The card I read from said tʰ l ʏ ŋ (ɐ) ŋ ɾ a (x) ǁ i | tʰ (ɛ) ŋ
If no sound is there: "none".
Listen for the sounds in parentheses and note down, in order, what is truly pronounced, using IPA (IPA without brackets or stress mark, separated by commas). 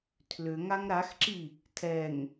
a, x, ɛ